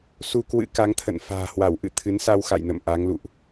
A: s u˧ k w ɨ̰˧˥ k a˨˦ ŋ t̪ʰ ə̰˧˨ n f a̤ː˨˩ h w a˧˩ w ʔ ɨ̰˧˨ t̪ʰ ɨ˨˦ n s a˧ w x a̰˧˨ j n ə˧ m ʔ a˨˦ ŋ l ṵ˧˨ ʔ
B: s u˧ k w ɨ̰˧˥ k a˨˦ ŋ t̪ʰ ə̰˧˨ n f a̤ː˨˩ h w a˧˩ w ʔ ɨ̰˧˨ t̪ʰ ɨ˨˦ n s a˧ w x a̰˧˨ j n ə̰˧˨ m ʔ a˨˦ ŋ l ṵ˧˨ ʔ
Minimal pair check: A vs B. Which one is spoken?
B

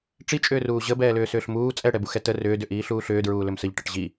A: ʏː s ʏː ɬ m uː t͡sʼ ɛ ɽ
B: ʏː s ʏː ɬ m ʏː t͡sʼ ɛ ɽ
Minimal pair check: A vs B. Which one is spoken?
A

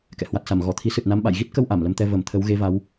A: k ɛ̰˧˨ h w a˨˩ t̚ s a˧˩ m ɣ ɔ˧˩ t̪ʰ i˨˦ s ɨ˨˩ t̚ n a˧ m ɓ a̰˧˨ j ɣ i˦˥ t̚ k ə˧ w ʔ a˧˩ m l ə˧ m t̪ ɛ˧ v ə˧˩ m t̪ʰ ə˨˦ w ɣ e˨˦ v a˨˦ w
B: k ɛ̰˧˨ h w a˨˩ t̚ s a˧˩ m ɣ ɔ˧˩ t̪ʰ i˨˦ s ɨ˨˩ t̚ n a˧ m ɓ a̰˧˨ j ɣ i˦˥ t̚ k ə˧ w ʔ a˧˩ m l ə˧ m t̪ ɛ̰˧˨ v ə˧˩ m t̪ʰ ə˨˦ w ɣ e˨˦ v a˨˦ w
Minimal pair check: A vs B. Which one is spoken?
A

